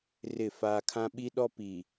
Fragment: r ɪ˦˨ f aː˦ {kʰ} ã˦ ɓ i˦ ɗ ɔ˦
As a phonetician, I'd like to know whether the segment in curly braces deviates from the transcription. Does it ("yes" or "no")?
no